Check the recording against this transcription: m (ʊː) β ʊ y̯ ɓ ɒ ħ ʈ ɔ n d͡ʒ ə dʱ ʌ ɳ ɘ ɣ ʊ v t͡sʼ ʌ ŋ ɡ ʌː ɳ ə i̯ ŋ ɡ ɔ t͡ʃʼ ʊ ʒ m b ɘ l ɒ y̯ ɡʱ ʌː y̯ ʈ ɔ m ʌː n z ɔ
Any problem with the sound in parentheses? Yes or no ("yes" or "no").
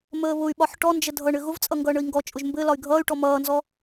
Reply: yes